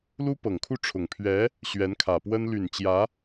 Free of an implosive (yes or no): yes